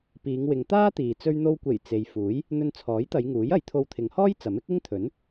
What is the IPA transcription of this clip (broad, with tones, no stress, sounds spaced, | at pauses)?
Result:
p iː˨˧ ŋ w ɪ˨˧ ŋ t̪ aː˥ t̪ iː˨ t͡s ɵ˧ ɥ n̪ o˧ w kʷ e˨˩ j t͡s e˨ j f uː˨˥ j | n̪ ɵ˧ n t͡sʰ ɔː˨˥ j t̪ ɐ˨˧ j ŋ uː˨˥ j ɐ˨˥ j t̪ʰ o˧ w t̪ʰ ɪ˨˧ ŋ h ɔː˥ j t͡s ɐ˨˥ m ɪ˥ k̚ ɪ˥ ŋ t̪ʰ ɵ˨˥ n